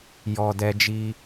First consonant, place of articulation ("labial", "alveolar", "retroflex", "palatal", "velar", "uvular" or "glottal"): palatal